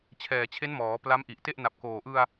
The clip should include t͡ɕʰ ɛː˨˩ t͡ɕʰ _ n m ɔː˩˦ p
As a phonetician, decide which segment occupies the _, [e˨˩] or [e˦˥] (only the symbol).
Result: e˦˥